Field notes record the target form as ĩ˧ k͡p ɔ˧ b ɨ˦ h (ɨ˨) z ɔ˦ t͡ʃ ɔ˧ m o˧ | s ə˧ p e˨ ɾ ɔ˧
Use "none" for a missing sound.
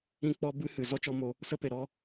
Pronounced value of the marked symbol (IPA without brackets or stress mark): ɨ˨